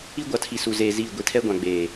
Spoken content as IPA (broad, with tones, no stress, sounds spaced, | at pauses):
i˦ ɡʷ a˨ tʰ i˨ s u˨ z eː˨ z iː˦˨ ɡʷ i˨ tʰ ɛ˦ ɡʷ ã˨ ɡ͡b eː˨